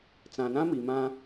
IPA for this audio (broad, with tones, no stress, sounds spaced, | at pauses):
t͡s ã˨ n ã˦ m i˨ m ã˦